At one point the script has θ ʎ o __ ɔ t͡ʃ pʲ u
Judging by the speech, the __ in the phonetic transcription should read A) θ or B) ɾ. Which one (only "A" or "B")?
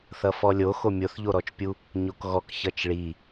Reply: B